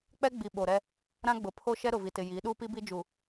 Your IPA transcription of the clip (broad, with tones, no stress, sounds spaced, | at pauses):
k͡p ɛ˦ ɡ͡b i˨ ɓ o˨ ɾ ɛ˦ | ɾ ã˦ ɡ͡b ʊ˨ pʰ o˦ ʃ ɛ˦ ɾ ʊ˨ v i˨ t ɪ˨ j iː˨˦ ɗ uː˦ p i˦ b i˦ d͡ʒ u˨